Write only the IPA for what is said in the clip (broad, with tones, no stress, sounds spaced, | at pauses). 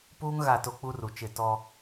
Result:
p uː˦ ŋ ɣ a˦˨ t o˦ k͡p u˦ r u˨ t͡ʃ ɪ˨ t ɔ˦